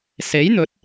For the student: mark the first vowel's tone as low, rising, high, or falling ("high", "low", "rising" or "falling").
rising